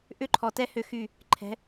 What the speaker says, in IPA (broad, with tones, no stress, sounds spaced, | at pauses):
ʔ ʏ˦ ǃʰ ɔ˨ t ɛ˦ h ʏ˦˨ x y˦˨ | ǃʰ ɛ̤˨˦